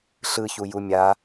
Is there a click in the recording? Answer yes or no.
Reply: no